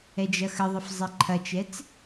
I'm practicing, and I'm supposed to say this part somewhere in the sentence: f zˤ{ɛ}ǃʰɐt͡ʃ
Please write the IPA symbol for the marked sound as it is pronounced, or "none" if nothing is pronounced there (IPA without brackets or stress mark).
ɛ